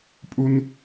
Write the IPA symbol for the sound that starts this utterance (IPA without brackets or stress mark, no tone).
pʼ